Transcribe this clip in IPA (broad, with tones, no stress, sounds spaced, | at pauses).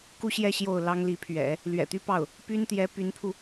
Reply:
k u˥˧ ɕ j ɛ˥˧ ɕ j o˥˩ ʊ̯ l ɑ˥ ŋ l i˧˥ pʰ ɥ ɛ̰˨˩˦ | l ɥ ɛ̰˨˩ t̪ y˥ p ɑ˥˩ ʊ̯ | p y˥ n t̪ j ɛ˧˥ p y˧˥ n pʰ u˧